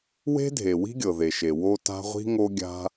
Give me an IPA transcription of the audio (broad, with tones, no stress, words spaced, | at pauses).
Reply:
we̤˥dʱe˩ wi̤˥ɡʲɤ˩ðe˩ʃe˩ wo˥ta̤˥ ʁʷi̤˥ŋo˥ɡʲa̤˥